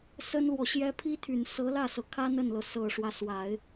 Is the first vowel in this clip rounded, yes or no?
no